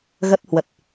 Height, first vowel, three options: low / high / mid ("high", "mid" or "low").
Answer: mid